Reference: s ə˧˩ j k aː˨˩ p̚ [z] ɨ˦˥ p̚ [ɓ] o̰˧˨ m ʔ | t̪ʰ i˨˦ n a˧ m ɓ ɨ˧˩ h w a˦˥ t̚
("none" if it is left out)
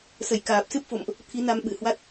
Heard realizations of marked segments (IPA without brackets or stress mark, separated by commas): s, f